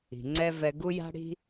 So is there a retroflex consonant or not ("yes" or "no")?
yes